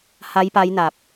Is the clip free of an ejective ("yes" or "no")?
yes